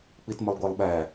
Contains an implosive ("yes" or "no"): yes